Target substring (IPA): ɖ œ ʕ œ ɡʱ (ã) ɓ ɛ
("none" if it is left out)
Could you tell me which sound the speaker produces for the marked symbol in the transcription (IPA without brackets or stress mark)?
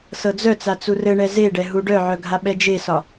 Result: a